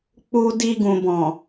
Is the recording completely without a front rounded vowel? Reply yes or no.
yes